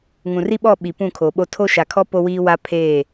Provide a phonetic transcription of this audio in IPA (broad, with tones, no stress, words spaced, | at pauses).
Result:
ŋũ˨ri˦ɓɔ˦˨ ɓi˨ pũ˦˨kʰo˨ɓo˦ tʰo˦ʃa˨kʰɔ˦ po˦wiː˦ wa˦pʰeː˦˨